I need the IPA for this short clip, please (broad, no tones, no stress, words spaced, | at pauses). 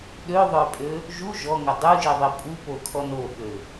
ɗøðˤœpʼø | ʒu ʒɔŋə dˤuʒiðˤi pʼupokʰɔn oɓø